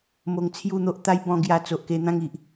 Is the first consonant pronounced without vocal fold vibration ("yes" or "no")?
no